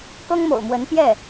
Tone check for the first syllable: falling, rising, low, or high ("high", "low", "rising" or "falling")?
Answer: high